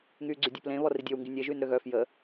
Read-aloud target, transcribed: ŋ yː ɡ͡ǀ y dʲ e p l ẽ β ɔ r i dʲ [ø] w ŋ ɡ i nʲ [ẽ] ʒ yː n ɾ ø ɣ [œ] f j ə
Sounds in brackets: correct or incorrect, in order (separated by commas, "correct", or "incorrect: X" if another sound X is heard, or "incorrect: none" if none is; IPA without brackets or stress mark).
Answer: correct, incorrect: e, correct